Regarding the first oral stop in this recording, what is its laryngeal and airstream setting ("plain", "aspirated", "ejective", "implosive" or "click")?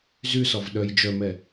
implosive